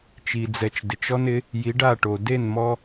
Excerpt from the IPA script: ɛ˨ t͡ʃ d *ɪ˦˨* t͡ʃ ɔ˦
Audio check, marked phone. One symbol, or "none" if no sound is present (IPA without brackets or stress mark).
ɪ˨